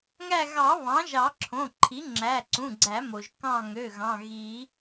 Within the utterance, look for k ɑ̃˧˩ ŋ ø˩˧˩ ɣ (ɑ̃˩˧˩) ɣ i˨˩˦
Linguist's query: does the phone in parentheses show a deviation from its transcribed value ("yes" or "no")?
no